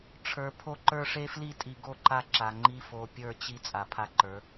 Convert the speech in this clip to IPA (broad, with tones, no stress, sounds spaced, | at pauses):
ʈ͡ʂʰ ə˞˨ pʰ o˦ ǃ ə˞˦ ʂ e˦ f l i˦ tʼ i˨ ɡ o˦˨ ǃ a˦ ǁ a˨ ŋ͡ǃ i˦ f o˨ pʲ ə˞˦˨ t͡ɕ i˦ t͡sʼ a˨ pʰ a˦ ǃ ə˞˨˦